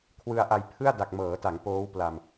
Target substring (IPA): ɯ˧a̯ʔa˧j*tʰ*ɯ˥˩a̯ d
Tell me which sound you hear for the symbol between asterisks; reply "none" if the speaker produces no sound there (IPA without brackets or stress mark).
pʰ